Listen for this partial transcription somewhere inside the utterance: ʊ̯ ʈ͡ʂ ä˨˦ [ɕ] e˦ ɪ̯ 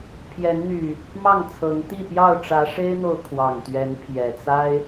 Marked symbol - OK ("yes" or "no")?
no